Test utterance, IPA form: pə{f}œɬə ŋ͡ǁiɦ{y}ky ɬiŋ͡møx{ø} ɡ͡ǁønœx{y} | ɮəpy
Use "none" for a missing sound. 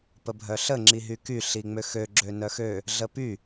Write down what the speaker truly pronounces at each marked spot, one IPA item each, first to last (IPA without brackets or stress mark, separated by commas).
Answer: bʱ, y, ø, ø